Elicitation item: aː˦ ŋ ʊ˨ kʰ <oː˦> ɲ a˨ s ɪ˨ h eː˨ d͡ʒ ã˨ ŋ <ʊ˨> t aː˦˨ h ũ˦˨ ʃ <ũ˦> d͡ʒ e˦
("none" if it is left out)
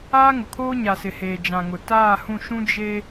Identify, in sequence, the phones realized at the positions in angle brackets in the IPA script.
oː˦, ʊ˨, ũ˦

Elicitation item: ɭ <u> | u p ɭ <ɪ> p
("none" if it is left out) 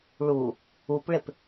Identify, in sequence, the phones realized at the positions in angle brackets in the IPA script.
u, ɪ

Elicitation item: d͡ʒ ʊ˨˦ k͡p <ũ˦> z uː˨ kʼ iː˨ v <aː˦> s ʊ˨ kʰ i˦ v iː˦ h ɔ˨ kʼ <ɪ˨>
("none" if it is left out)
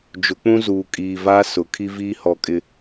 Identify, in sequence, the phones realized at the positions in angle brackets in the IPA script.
ũ˦, aː˦, ɪ˨

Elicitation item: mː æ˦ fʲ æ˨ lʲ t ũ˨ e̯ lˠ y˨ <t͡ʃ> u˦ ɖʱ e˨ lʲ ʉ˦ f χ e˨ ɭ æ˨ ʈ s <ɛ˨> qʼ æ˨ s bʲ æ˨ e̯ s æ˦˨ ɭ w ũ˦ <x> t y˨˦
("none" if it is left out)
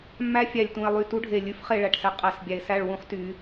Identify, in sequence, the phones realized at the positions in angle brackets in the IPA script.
t, ɛ˨, χ

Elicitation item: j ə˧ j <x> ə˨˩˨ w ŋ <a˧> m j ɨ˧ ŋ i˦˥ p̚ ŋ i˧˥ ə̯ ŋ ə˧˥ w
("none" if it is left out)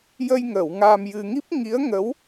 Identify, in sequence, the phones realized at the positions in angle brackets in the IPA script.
ŋ, a˧

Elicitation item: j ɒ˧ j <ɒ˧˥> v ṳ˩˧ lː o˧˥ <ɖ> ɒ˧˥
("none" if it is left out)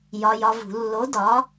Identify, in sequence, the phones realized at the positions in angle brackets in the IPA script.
ɒ˧, d

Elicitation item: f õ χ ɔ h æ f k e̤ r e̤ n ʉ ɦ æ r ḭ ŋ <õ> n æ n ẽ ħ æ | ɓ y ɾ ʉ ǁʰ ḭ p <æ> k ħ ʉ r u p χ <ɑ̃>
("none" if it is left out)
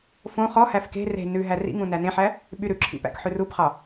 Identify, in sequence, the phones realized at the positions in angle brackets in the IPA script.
ũ, æ̰, ɑ

